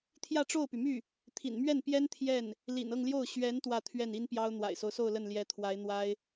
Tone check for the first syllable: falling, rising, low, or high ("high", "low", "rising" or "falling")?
falling